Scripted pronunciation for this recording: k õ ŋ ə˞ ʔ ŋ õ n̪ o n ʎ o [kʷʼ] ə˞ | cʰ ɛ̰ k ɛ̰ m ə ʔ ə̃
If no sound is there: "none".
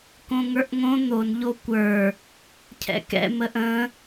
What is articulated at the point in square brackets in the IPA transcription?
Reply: kʷ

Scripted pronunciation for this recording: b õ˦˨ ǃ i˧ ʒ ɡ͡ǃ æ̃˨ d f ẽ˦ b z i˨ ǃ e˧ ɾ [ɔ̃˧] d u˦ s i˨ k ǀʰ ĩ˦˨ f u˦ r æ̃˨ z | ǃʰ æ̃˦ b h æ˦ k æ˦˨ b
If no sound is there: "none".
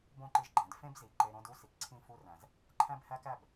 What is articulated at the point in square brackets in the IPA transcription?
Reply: õ˧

